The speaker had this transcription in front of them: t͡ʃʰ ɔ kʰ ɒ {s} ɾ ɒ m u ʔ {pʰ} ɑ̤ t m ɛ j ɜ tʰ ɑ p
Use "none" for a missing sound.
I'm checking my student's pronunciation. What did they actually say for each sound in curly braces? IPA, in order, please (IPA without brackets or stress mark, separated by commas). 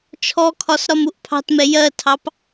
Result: s, pʰ